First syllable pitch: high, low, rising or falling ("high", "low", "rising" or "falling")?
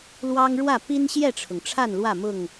high